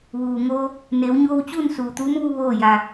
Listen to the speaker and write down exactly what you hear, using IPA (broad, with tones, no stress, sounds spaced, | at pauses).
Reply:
ʋ uː˩ ŋ oː˧ | n eː˩˧ w ɲ oː˧ w t͡ɕ uː˥˨ n s uː˩ t̪ uː˧˥ m ʋ u˧ ʋ oː˥˨ j a˧